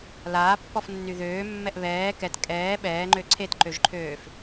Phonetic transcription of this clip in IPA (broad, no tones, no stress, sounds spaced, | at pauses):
l aː pː ɔ f nː y ð øː mː ɛ ʔ β ɛː k ɛ t kʼ ɛː ɓ ɛː ŋ͡ǃ ø ǀʰ e t ǃ ø ʒ ǃʰ øː f